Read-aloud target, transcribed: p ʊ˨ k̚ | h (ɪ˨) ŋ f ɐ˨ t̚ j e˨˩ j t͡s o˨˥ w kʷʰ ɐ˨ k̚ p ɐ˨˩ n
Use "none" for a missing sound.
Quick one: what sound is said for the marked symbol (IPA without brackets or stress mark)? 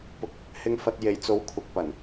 ɪ˨